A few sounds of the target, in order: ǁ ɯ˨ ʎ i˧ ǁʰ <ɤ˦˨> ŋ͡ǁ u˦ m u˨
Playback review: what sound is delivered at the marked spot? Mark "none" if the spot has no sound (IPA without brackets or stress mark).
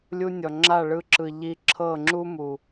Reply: ɤ˦˨